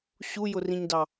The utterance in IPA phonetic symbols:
ɕ u j ʊ r ĩ ɲ d ɑ

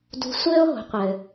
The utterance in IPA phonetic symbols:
d ṳ˧ sʷ ɘː˥ o̯ ɦ o̤˩˧ qʷ ɘː˩

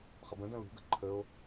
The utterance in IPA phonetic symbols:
χ ɐ b ə̃ d ɐ̃ l ṳ ɡ ə̤ ǃʰ ə o̯

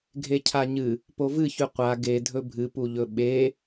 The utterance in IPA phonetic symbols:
ɡʱ e cʰ a ɲ ɨ | p o v ɨ ç ʉ qʷ a ɡ e dʱ ɵ bʱ ɨ p u ʎ ɵ ɓ e

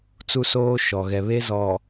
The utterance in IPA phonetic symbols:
t͡s u˦ s oː˦ ʃ ɔ˨ ɣ ɛ˨ β e˦ z ɔ˨

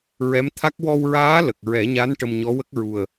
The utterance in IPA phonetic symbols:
ɹ ɛ˧˥ m t̪ʰ a˦˥ k̚ w ɔ˧ w ɹ aː˧˥ l ə˨˩ k̚ ɹ ɛ˨˩˦ ɲ a˧˥ n ʈ ə˧ m ɲ ɔ˧˥ w ə˦˥ k̚ ɹ u˨˩ ə̯

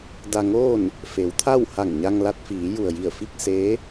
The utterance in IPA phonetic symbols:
d a˧ ŋ oː˥˨ n | f e˩˧ w t̪ʰ a˥˨ w h a˧˩ ŋ ɲ a˧ ŋ l a˧ t̚ f iː˩˧ j u˩ ə̯ j i˧˩ ə̯ f i˥˨ k̚ s eː˧˥

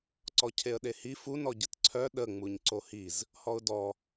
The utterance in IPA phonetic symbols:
ǀ ɔ cʰ e ə̯ ɗ e h i f u n ɔ ɟ ə t ǀʰ œ ɗ ə ŋ͡m u ɲ ǀ o h i z | h ɔ ʊ̯ d ɔ

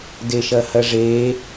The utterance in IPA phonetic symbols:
d e ʃ ɐ h ɐ ʐ e

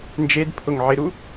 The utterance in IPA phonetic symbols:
n d͡ʒ e d pʰ ʊ ŋ ʕ ɪ ɾ u

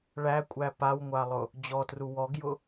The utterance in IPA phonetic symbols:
ɭ æ kʷʼ æ p a w ŋʷ a lˠ ʊ | d͡ʑ ɔ t r u w ɔ ɡ j ʊ

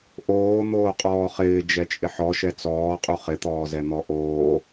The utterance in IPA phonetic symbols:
ʔ oː n̪ oː qʼ ɔː χ ɪː d͡ʒ ɛ t͡ʃʼ ɪ ħ ɔ ʃ ɛ t͡s ɔː qʼ u χ ɪ t̪ ɔː z ɛ n̪ ɔ ʔ oː

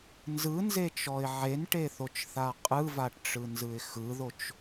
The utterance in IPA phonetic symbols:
n z ɯ n z e t͡ʃ ɔ ɪ̯ ʕ e n ʈ e θ o t͡ʃ θ a qʼ ɯ v a ʈ ʈ͡ʂ ɯ n z ɯ ɪ̯ x ɯ ð o t͡ʃ

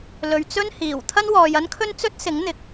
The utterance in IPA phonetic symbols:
l ɵ˨ ɥ t͡s ɵ˥ n h iː˨˩ w t̪ʰ ɐ˥ n w ɔː˨ j ɐ˥ n kʰ ɵ˥ n t͡s ɵ˥ t̚ s ɪ˨˥ ŋ n̪ ɪ˨ k̚

